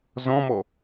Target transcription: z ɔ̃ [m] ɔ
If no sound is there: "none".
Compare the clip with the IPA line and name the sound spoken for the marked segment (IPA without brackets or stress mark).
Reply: m